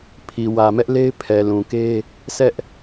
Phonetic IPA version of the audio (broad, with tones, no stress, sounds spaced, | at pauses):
pʰ i˨ w ä˨ m ɛ˦ ʔ l e˦ ɪ̯ pʰ ɛ˨ l ũ˨ k e˦ | sʰ ɛ˦ ʔ